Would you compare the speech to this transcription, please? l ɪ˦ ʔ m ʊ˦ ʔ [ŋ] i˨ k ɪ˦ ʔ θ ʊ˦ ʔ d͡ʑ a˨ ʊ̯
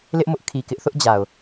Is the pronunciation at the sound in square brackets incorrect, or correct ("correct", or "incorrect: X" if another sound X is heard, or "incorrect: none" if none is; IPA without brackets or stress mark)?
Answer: incorrect: kʰ